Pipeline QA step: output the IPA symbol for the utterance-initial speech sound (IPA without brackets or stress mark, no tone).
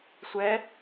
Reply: sʷ